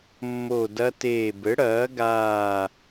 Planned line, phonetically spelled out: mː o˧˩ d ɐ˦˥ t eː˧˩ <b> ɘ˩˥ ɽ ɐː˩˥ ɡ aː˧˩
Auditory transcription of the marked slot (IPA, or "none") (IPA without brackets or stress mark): b